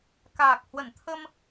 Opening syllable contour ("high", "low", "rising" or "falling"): low